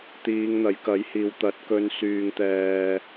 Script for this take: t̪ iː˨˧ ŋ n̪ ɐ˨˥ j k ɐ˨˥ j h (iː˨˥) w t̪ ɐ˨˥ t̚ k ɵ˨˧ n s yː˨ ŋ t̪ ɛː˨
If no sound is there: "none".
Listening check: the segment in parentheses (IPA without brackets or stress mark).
iː˨